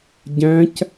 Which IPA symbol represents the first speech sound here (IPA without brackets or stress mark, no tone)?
ɟ